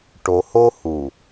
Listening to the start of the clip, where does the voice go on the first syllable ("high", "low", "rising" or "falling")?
low